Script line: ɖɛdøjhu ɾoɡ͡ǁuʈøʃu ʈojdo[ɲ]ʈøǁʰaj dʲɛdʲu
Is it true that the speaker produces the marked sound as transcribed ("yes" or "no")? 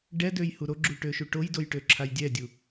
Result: no